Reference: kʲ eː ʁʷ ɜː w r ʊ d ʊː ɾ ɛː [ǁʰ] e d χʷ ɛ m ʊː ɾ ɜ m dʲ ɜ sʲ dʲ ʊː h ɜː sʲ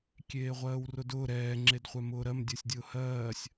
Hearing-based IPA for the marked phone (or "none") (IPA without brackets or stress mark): ŋ͡ǁ